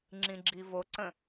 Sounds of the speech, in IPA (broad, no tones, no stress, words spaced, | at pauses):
ŋ͡ǁĩɡ͡ǁivoǀə̃